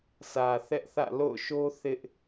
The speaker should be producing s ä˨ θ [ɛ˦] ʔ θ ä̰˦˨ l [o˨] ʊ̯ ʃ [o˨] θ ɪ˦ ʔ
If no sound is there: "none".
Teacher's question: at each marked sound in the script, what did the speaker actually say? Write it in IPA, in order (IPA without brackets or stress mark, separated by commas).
ɛ˦, o̰˦˨, o˦